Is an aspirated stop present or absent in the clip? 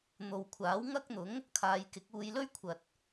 present